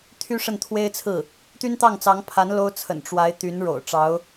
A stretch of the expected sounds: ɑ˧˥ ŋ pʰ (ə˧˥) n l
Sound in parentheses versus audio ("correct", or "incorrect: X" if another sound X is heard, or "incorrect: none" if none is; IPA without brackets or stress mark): incorrect: a˧˥